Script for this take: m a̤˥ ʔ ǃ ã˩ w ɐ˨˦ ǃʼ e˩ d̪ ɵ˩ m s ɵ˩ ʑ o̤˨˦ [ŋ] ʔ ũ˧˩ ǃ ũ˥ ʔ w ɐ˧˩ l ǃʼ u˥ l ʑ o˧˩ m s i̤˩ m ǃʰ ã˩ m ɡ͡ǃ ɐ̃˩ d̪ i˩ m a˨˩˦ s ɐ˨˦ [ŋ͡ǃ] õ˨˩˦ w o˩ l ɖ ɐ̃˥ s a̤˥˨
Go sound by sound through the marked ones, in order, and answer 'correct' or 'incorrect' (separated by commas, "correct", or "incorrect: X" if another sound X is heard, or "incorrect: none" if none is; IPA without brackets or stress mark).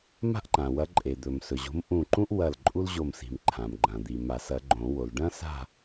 incorrect: m, incorrect: ɡ͡ǃ